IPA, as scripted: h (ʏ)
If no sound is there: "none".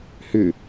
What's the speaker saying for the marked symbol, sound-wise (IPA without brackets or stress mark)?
ʏ